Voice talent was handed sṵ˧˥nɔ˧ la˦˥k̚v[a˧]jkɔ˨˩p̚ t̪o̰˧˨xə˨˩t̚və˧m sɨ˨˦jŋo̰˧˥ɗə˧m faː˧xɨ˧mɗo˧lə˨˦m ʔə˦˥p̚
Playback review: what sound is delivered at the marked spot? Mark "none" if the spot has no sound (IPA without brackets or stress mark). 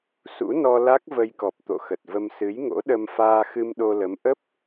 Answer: ə˧